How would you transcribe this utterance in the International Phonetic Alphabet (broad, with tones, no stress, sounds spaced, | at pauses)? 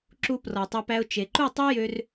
ǁ u˧ p r ɔ˨ tˤ ø˧ p æ˧ ʊ̯ t͡ʃ e˨ ǃ u˦˨ tˤ ø˦ j ø˧ r